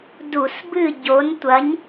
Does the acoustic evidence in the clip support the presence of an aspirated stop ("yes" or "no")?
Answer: no